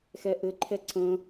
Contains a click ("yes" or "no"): yes